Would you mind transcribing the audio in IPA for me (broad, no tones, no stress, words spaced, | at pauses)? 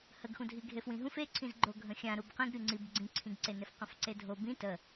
həɡxũdʱi ɡʱefwĩɦũf eǀʰĩz ɡ͡ǃoɡʱə̃xʲã ɾubqĩɡ ɾʲuŋ͡ǀib ɡ͡ǀĩǀʰĩɡǀenef qə̃fǀedʱo bĩ tə